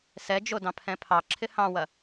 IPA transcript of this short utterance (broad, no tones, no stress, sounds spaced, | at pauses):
s ɛ d͡ʒ o d ɑ̃ pʰ ɛ̃ pʰ ɑ ǁʰ ɪ h ɑ̃ w ɐ